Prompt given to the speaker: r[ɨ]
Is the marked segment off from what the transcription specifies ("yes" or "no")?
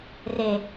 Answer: yes